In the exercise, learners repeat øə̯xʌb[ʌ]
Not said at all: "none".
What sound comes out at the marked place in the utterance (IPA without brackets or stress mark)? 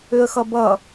ʌ